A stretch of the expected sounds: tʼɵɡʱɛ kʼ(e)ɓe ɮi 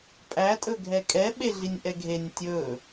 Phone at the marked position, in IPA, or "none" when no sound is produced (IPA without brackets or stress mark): ɛ